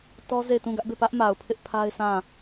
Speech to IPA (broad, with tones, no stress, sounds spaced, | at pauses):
t ɔ˦ z e˦˨ ɪ̯ t ũ˦˨ ɡ ä˦ ʔ b e˦˨ p ä˦ ʔ m a˨ ʊ̯ pʰ ɪ˦ ʔ pʰ a˦ ɪ̯ sʰ ã˦˨